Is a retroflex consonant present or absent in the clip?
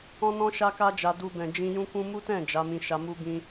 absent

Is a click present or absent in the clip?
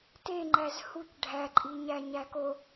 present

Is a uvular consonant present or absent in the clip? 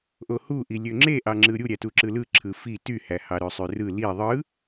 absent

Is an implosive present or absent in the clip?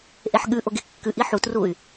present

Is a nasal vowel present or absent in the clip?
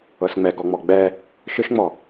absent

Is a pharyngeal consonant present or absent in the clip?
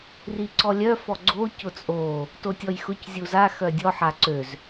present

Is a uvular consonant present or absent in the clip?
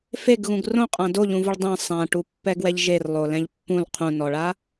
present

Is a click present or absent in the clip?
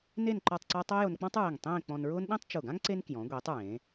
present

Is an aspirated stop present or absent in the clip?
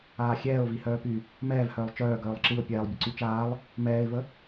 absent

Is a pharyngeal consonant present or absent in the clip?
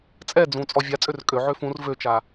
present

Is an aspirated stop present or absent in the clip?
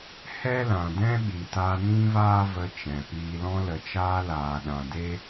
absent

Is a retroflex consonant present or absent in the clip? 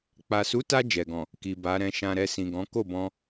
absent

